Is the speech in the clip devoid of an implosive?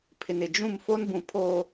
yes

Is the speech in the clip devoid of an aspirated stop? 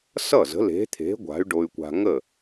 no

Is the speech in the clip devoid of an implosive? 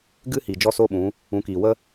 no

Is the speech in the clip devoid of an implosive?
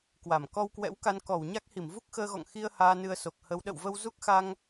no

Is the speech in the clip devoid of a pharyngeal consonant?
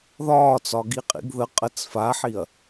no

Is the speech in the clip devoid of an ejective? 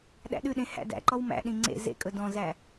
no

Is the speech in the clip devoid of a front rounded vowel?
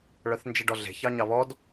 no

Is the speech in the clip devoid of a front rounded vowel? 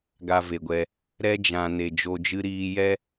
yes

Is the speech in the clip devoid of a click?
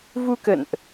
yes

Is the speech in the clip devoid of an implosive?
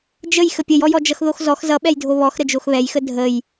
no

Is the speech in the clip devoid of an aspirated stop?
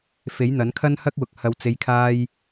no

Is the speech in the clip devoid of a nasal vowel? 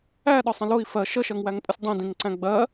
no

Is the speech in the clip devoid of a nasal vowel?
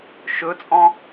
no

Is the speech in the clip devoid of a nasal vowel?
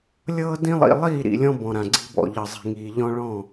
no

